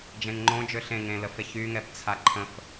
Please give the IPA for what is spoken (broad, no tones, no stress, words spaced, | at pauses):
d͡ʒẽŋŋ͡ǃõ d͡ʒøɬẽ ŋẽləfeç yŋɛb t͡sʰaǃʰə̃f